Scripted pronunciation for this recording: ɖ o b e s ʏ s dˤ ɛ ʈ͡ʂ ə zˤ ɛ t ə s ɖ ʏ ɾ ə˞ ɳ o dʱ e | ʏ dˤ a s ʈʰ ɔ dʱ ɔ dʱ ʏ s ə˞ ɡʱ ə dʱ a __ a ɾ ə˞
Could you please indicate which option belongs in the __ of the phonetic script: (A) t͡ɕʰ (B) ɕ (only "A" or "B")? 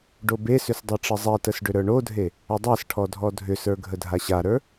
B